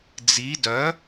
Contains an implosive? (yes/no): no